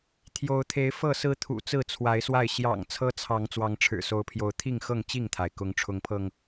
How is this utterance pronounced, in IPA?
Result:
t̪ʰjo˨˦ʊ̯t̪ʰe˨˦ɪ̯ fɤ˥˨sɹ̩˦t̪ʰṵ˨˩t͡sɹ̩˥˨ t͡sʰwa˨˦ɪ̯swa˥˨ɪ̯ ɕjɑ̰˨˩ŋ t͡sʰɤ˦t͡sʰɑ˨˦ŋ t͡swɑ˨˦ŋʈ͡ʂʰɻ̩˨˩so˨˦ʊ̯pʰjo˨˦ʊ̯ t̪ʰi˥˨ŋxɤ˥˨ŋ t͡ɕi˥˨ŋt̪ʰa˩ɪ̯ kʊ˨˦ŋʈ͡ʂʰʊ˨˦ŋpʰɤ˧ŋ

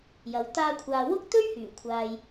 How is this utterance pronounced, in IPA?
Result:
jɐ˨˧w t̪aː˧kʷʰaː˨ wʊ˥k̚t̪ɵ˥ɥ hyː˨˩kʷʰaː˨j

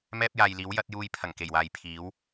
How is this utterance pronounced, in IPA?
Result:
mɛː˥p̚jaː˨j liː˨˥w jɐ˨˥t̚juː˧j pʰɐ˨˩ŋke˨˩jwaː˨j pʰiː˨˥w

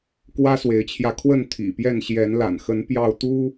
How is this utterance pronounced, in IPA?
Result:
kwä˦swe˨˦ɪ̯t͡ɕʰjä˧ kʰwə˥˨n t̪ʰḭ˨˩pjɛ˥˨n ɕjɛ˨˦nla̰˨˩n xə˨˦n pjɑ˥˨ʊ̯t̪u˦

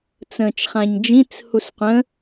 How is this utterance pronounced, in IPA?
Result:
t͡sə̃ːt͡ʃχãɲd͡ʒĩt͡s husqʷə̃

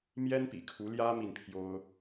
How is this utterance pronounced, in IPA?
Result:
mjɛ˥npḭ˨˩kʰu˧˥ ljä˥ mi˥˩npʰjo˥ʊ̯

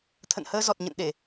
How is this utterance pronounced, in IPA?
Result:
t̪ʰə̰˧˨n həː˧zɔ˨˩t̚ ɲə̰˧˨nɗe˧˩˨

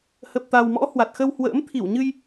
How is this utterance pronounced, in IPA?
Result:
hə˨˩p̚t̪a˨˩wmɔ̰˧˥ hwa˨˩t̚xə˧whwə̰ː˧˥m t̪ʰi˧˩wɲɨ˧j

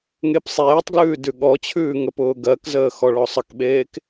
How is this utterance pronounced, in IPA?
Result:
ŋepsˤeːtˤɡlʉː dʉɠɔt͡ɕʰʉː ŋəpʊːɡɜkzəː xɔɭɔsˤəkɓeːk

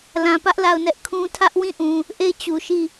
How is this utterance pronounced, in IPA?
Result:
lã˨pä˦ʔ la˦˨ʊ̯nɛ˦ʔ kʰũ˦ tʰä˦ʔwĩ˦˨ʔũ˨ | ʔe˦˨ɪ̯ t͡ɕu˨ʃi˦˨

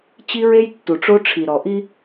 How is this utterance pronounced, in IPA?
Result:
t͡ɕi˦ɹe˦jtːu˨ʈ͡ʂo˦ ʈ͡ʂʰi˨ɾɔ˨ʔi˦

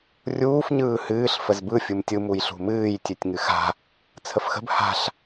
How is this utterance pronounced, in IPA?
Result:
rʲuːf ɲɯːhɨːɬ fəzbɯ fʲɯmtʲɯ mujɬṳmɨːj tʲʉtʲŋɨxa̤ | t͡sʰəfxə̤b ha̤ɬ

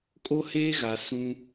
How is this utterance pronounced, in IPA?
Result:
kʼo˦heː˦ɣa˨ sũ˦

